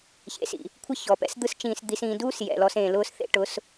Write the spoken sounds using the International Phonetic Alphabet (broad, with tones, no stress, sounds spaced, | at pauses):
ç ḛ˨ s ḭ˨ | kʷʰ ə˦ ç ɔ˨ p ɛ̰˦ s d̪ ɯ˦ s t͡ʃ ĩː˨ s d̪ i˨ s ĩː˨ d uː˦ s j ɛ̰˨ l ɔ˦ s ẽː˨ l ʊː˦ s θ ḛ˦ ʈ ʊ˨˦ s